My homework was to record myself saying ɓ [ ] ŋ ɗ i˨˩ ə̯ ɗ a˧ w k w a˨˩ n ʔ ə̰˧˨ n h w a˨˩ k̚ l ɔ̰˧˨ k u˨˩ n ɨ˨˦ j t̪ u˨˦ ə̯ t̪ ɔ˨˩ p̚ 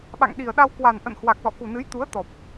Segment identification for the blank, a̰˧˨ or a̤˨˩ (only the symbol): a̰˧˨